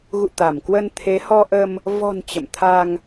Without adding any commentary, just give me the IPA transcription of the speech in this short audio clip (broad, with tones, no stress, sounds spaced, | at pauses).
ɣ ṵ˧˨ t̪ a˧˩ m k w ə˧ n t̪ʰ e˨˦ h ɔ˧ ʔ ə˧ m | v ɔ̤˨˩ n t͡ɕ ə̰˧˨ m t̪ʰ a˧ ŋ